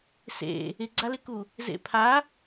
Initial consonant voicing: voiceless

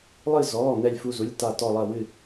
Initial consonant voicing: voiced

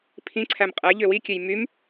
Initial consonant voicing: voiceless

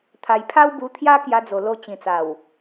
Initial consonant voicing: voiceless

